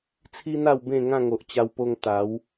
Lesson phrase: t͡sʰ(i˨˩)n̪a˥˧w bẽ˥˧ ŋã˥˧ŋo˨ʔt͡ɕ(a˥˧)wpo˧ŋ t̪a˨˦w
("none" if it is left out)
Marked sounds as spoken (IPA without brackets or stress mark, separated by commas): i˦, a˧